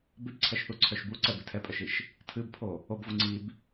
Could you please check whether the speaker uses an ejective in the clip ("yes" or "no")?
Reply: yes